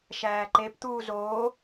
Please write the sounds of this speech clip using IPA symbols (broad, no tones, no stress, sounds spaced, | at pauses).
ʃ æː ǃ e p t̪ uː z oː